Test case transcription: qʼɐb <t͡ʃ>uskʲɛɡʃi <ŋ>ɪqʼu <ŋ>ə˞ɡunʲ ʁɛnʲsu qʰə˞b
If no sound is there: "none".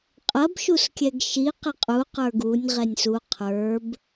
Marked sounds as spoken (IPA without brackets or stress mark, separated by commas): ʃ, q, q